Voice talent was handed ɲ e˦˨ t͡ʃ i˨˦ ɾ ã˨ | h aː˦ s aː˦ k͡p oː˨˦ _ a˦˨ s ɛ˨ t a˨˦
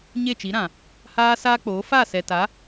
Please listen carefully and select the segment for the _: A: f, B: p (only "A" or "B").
A